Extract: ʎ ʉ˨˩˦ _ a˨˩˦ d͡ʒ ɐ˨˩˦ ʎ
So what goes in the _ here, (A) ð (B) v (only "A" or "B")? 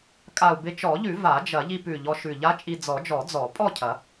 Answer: B